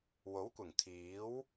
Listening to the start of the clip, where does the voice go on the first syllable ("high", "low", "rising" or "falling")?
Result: rising